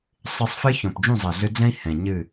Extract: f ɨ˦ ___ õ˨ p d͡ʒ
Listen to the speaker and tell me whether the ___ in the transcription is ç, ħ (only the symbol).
ç